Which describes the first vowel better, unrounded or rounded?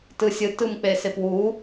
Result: unrounded